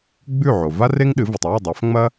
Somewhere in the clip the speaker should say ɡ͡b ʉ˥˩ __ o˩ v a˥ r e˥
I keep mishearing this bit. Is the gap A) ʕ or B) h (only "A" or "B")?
A